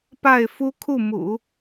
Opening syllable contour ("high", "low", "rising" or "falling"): falling